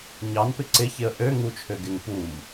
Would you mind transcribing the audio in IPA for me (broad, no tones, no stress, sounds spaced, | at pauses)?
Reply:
ɲ ɑ n p ɪ ǀ ɪ ç ɪ ə̯ ʔ ø ŋ u t͡ʃʰ ø ɡ ɪ ŋ p u m